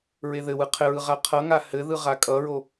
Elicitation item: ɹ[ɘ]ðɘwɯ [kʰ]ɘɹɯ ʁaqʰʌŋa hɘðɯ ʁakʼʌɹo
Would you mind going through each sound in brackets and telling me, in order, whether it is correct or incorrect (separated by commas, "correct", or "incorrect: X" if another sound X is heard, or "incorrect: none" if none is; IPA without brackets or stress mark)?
incorrect: e, incorrect: qʰ